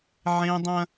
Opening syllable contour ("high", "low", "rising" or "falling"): high